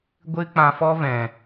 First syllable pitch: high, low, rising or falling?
high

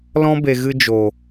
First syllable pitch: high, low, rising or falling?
high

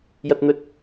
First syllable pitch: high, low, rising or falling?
high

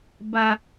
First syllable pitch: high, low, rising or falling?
high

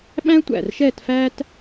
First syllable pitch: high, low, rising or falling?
high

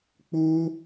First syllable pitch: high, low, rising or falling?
high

